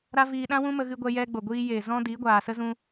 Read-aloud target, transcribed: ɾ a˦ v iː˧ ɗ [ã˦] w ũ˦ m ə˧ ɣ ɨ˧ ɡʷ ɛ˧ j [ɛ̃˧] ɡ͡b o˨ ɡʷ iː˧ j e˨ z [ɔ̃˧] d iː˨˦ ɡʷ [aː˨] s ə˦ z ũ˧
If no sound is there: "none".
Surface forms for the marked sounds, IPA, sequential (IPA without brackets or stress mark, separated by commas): ã˦, ɛ˧, ɔ̃˦, aː˨